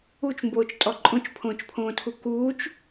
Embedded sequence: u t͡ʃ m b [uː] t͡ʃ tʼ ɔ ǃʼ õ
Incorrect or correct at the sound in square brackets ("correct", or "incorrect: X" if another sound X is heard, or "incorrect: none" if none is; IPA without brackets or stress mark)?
incorrect: oː